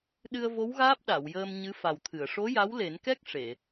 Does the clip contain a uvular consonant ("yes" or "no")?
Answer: no